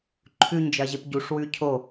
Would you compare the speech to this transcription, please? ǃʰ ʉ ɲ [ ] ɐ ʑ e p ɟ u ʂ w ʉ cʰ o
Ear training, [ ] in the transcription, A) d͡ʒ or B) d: A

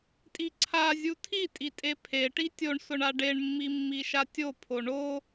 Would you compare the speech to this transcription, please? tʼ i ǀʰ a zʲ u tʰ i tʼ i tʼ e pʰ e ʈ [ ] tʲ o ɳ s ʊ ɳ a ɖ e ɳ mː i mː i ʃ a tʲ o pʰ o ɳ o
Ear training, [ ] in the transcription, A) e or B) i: B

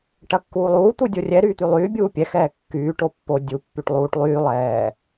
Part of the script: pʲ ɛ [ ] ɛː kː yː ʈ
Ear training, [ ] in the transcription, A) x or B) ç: A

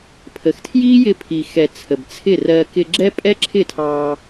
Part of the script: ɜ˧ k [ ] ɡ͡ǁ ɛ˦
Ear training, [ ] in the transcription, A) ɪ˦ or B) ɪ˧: B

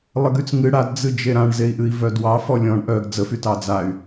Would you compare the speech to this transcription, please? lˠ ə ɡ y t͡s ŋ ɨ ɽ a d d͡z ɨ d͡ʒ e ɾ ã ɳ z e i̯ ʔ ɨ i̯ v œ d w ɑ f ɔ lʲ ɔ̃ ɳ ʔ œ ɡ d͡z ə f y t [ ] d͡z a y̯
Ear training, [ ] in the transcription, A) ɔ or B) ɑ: B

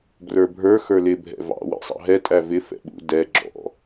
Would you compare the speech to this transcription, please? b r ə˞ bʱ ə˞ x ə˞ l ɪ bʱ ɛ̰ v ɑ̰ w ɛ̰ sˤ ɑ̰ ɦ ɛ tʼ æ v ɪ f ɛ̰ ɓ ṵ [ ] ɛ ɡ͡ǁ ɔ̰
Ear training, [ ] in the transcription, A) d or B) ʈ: A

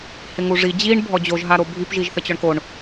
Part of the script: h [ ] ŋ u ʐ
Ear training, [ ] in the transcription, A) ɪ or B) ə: A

